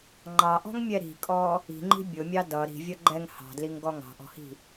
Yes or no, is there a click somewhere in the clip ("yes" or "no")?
yes